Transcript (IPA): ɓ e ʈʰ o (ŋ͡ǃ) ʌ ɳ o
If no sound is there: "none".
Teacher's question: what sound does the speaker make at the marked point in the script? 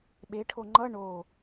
ŋ͡ǃ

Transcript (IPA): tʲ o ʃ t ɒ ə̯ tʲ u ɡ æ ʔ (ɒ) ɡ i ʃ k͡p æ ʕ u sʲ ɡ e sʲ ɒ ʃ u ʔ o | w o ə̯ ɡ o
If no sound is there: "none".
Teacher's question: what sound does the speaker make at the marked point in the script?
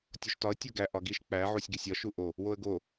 ɒ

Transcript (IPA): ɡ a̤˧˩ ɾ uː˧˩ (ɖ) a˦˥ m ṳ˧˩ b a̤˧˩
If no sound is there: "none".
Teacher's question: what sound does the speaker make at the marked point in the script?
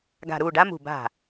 ɖ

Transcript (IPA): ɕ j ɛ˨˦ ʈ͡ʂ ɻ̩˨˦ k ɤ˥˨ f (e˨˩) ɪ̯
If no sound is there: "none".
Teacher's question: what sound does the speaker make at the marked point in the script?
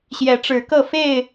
e˥˨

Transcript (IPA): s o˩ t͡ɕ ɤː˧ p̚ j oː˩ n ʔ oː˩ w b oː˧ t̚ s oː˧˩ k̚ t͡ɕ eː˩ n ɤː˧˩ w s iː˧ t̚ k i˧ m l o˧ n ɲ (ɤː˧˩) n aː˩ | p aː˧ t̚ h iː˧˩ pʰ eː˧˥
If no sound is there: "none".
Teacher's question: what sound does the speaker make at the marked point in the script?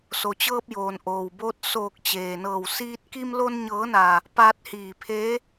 ɤː˩˧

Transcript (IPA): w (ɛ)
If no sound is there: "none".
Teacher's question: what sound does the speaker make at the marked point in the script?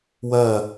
ɜ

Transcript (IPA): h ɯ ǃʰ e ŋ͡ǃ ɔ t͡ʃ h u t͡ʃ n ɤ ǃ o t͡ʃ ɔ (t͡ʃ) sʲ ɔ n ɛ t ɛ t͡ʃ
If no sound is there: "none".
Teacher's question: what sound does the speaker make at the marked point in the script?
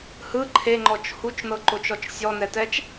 t͡ʃ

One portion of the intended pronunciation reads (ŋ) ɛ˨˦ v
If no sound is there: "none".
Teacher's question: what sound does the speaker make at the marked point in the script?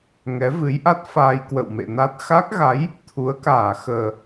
ŋ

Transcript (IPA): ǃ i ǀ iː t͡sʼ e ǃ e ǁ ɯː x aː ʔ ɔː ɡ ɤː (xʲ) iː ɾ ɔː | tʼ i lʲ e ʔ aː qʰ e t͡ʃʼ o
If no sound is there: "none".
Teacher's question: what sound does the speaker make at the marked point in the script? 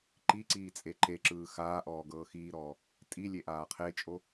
x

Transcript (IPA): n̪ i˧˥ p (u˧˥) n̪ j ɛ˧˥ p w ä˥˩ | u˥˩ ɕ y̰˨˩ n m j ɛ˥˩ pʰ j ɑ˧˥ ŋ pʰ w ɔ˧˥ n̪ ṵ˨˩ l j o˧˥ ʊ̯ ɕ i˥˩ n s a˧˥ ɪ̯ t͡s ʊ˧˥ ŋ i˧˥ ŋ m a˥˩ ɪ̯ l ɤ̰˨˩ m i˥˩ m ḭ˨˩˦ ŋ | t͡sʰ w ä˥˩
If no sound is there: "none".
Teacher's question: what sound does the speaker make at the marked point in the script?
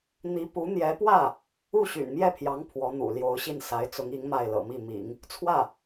u˧˥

